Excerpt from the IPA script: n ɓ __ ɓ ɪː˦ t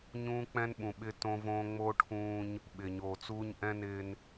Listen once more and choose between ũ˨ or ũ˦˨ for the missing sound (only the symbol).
ũ˨